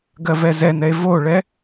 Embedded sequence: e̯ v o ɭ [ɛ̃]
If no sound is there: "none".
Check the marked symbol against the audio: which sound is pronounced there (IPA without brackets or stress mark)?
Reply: ɛ